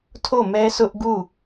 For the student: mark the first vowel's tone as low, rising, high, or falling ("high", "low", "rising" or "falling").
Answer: falling